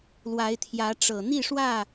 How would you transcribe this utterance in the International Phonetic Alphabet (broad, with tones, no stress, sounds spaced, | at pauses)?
l w a˨˦ ɪ̯ t̪ʰ j ä˨˦ ʈ͡ʂ ɤ˨˩ n̪ i˥˨ ʂ w ä˥˨